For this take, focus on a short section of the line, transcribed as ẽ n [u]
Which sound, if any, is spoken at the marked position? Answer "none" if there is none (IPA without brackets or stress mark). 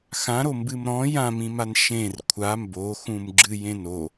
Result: o